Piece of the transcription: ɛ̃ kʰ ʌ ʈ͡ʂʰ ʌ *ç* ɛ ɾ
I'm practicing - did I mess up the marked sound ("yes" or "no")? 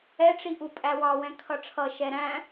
yes